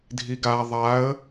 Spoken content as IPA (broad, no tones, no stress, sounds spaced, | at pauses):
dʱ i ɡ a ðˤ a ə̯